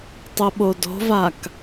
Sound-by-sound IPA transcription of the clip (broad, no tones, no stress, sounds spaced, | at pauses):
tˤ u ɓ o d o̤ v a k